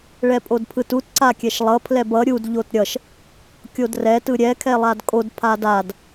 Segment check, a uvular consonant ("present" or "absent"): absent